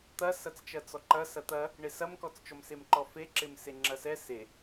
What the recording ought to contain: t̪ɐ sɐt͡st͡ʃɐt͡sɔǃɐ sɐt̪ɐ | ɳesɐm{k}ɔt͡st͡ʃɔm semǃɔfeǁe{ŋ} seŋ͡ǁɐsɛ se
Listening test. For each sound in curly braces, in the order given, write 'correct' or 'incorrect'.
correct, incorrect: m

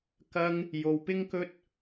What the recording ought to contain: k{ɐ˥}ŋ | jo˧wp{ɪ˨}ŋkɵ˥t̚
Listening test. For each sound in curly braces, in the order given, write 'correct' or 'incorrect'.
correct, incorrect: ɪ˥

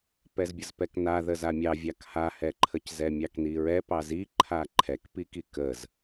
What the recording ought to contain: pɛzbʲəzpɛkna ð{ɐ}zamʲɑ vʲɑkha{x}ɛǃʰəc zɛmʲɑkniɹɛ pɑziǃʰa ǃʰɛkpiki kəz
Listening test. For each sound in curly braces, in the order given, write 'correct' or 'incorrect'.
incorrect: ə, incorrect: h

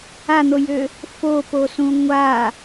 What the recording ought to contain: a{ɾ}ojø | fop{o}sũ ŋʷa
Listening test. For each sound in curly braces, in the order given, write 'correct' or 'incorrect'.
incorrect: n̪, correct

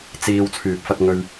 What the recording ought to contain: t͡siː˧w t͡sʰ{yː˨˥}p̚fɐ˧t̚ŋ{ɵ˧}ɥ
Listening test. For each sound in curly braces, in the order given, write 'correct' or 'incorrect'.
incorrect: yː˨, correct

